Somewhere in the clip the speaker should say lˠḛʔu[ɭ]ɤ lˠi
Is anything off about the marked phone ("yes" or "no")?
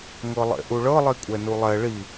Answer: no